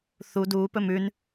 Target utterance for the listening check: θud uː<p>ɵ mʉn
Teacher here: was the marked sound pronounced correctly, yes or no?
yes